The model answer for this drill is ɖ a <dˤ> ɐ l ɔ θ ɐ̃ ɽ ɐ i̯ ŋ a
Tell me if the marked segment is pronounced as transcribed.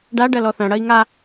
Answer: no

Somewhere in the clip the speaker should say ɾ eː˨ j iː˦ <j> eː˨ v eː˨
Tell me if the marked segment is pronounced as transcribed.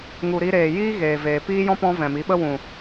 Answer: no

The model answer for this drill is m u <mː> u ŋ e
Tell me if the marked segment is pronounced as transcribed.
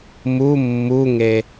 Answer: yes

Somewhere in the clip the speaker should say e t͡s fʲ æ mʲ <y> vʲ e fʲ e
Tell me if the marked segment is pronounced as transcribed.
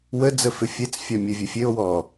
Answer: no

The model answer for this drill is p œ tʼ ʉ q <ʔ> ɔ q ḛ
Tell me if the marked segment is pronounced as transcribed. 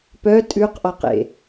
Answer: yes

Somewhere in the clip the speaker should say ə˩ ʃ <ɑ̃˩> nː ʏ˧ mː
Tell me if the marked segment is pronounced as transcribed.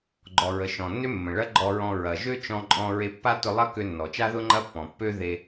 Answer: no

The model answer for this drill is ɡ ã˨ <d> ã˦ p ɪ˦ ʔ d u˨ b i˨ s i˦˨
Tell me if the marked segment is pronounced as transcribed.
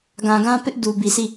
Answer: no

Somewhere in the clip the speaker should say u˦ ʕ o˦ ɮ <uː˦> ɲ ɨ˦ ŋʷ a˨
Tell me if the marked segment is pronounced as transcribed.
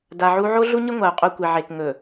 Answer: no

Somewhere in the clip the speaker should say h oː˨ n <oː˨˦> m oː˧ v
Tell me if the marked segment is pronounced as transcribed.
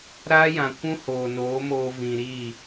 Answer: yes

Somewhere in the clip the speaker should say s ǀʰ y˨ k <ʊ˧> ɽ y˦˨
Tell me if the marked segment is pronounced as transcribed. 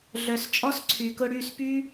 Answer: yes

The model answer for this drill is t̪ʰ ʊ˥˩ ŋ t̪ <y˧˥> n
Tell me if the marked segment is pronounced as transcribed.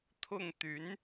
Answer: yes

